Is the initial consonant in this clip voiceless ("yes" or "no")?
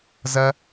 no